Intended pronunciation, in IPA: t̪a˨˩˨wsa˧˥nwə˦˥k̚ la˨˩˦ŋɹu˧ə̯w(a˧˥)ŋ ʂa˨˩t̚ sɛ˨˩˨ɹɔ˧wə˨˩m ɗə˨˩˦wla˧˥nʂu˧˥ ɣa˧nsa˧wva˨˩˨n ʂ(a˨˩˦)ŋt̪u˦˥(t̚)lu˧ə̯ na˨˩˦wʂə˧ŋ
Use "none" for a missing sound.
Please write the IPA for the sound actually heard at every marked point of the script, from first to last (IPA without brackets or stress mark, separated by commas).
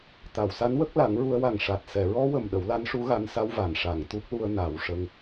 a˨˩, a˨˩˨, k̚